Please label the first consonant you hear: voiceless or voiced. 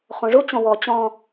voiceless